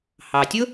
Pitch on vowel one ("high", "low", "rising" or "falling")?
low